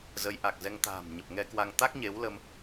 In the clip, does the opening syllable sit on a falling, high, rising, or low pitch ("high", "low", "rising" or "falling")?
rising